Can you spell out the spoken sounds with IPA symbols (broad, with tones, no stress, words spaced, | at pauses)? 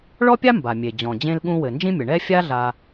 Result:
ɭɔ˥pʲa˥ mba˩ mʲe˩d͡ʑɔ̃˩d͡ʑẽ˨lɠũ˨ wɘ˩nd͡ʒĩ˥mʲɘ˩ ɳɛ˥ fʲa˥ɮa˨